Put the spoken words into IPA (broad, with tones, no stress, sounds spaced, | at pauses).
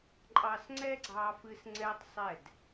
ǃʼ ɑ˧ s ŋ͡ǀ ɛ˦ ɡ͡ǀ ɑ˧ f ɨ˧ s ŋ͡ǀ ɛ˦ tˤ sˤ ɛ˦˨ d